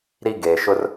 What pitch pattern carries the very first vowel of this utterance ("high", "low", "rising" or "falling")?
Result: high